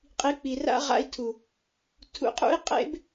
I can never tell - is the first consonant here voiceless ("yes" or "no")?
yes